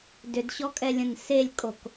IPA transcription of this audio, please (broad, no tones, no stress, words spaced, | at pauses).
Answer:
dʏdɕɔkʼɛlʲə̃n selʲkʼok